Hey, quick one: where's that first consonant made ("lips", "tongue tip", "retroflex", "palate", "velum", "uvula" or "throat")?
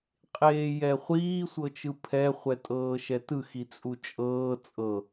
uvula